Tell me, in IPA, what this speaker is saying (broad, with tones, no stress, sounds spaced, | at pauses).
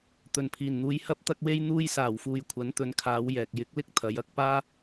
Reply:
t̪ ɵ˨˩ n pʰ iː˨˩ n n̪ uː˨˧ j h ɐ˥ p̚ t̪ ɐ˥ k̚ w e˥ j n̪ uː˧ j s aː˨˩ w f uː˨ j kʷʰ ɐ˨˥ n t̪ ɵ˨˧ n kʰ aː˨˧ w j ɛː˨ k̚ j ɪ˨˥ k̚ l ɪ˥ k̚ t̪ʰ ɐ˨˧ j ɐ˧ k̚ p aː˥